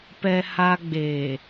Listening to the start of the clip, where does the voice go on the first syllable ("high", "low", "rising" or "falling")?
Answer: high